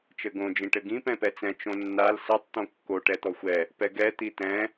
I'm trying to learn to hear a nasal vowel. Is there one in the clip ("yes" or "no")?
yes